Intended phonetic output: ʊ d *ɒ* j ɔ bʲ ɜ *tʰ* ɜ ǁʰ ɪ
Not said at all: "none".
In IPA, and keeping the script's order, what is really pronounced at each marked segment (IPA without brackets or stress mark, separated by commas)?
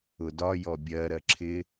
ɒ, ɾ